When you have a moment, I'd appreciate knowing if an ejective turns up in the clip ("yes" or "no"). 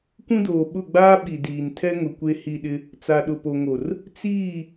no